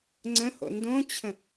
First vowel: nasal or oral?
nasal